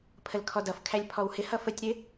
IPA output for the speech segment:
pʰ ə l kʰ ɔ d ʌ f kʰ æ lʲ pʰ ɔ w h ɪ h ʌ f ə tʲ ɾ ɪ

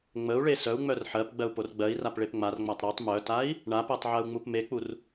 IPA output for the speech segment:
ŋ͡m ə u̯ ɭ e s œ u̯ ŋ͡m œ r ħ ɜ p ɡ͡b ɜ u̯ p o r ɡ͡b ɜ i̯ r a p ɭ e p ŋ͡m a r ŋ͡m a tˤ ɾ e tˤ m œ t a i̯ | ɳ a p ɜ tˤ ʕ ɜ u̯ ŋ͡m u p m e k͡p u r

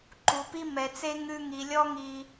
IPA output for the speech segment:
ǃ u˨ p i˦ m ɛ˨ t͡s e˦ ŋ ʉ˧ ŋ i˨ lʲ ɔ˦ ŋ i˧

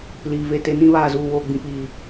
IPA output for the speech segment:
l iː˨ v e˦˨ t e˦ n ĩ˦ β aː˨ z uː˦˨ w oː˦˨ ɡ͡b ĩ˦ p iː˨

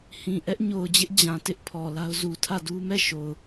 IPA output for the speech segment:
h ĩ˨ ʔ ɛ˦ ʔ ɲ o˨ ʊ̯ d͡ʑ ɪ˦ ʔ d͡ʑ ã˨ t ɪ˦ ʔ pʰ ɔ˨ l a˦ ʊ̯ z u˨ tʰ ä˦˨ d u˦ m ɛ˦˨ ʃ o˨ ʊ̯

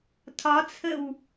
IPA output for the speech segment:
tʰ ɒ t͡sʰ ə w

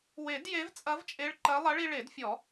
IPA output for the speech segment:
w e˨˩˦ d j e˧˥ v t͡sʼ ɐ˧˥ v t͡ʃʼ e˧˥ ɭ ǃ ɐ˧˥ lˠ ɐ˧˥ ɭ i˧ ɭ e˨˩˦ d fʲ ɔ˨˩˦

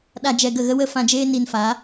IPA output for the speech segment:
ɗ a˧ d͡ʒ ɛ˧ ɡ ə˦˨ ɣ ə˦ w ə˦ f ã˧ d͡ʒ eː˦ n i˧ n f a˨˦

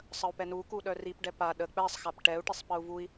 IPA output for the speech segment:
sˤ ə u̯ p ɛ n u k u ɗ œ r i p ɖ ɛ p a ɗ ə k͡p ɛ sˤ x a p ʈ ɛ u̯ ʈ i sˤ p ə u̯ v u i̯

